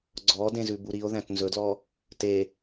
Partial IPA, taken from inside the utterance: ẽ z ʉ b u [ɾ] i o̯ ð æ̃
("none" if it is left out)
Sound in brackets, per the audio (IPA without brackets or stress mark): ɾ